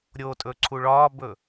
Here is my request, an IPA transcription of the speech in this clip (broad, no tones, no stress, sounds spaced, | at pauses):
ɾʲ o tʼ ɵ ǀʰ u ɭ ɒː b ɵ